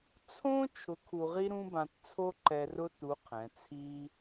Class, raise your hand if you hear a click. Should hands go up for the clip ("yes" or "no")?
yes